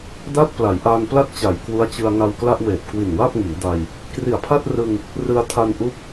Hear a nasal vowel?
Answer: no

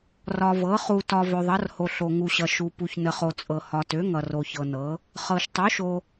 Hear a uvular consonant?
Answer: yes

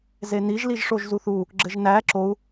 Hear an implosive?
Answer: no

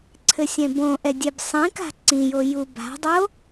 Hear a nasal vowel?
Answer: yes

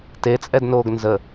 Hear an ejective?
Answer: yes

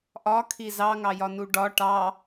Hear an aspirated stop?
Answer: yes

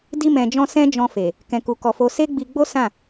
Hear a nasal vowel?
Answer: yes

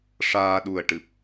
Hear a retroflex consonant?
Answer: yes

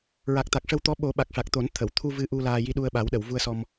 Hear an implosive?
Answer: yes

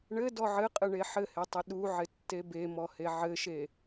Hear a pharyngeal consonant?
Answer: yes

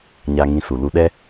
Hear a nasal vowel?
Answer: yes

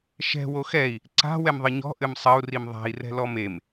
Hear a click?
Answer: yes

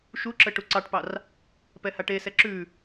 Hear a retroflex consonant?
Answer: yes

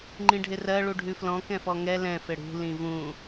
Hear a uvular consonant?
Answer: no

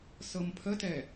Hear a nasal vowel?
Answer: no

